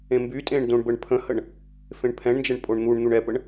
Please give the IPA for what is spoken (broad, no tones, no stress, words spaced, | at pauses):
ẽmbytʼẽɳ dõɳbəɳpʰə̃həɳ | fẽɳpʰɛ̃ɳnd͡ʒəɳ pʼoɳn̪uɳn̪uɳ ɛpəɳ